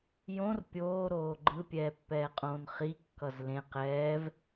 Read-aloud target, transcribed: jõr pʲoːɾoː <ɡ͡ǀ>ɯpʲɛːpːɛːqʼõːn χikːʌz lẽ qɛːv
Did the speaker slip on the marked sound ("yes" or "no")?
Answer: yes